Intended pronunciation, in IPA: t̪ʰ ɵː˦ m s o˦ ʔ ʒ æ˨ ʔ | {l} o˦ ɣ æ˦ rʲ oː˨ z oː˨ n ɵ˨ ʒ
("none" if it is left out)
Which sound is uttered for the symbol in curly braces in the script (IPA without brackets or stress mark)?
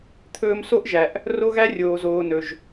r